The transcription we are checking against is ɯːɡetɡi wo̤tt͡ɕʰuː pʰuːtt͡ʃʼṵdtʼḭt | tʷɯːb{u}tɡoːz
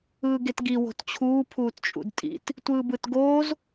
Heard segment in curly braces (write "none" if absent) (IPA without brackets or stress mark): ɯ